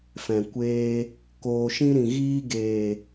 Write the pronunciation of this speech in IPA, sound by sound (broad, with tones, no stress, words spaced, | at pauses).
fɛ̃˨kʷeː˧ | koː˨ʃĩ˧ ɾĩ˨ɣiː˧ɡeː˨